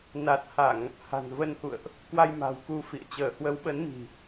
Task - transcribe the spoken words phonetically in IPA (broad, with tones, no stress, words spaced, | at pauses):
na˨˩t̚ha˧˩˨ŋ | ha̤˨˩nvə˧nhṵ˧˨ə̯ʔ | kwa˧jma̤˨˩w ku˧fḭ˧˨ə̯ t͡ɕəː˧˩hwə˨˦wɓə˨˦n mi̤˨˩